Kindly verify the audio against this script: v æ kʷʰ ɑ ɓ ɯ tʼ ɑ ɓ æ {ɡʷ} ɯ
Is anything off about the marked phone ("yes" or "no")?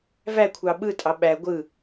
no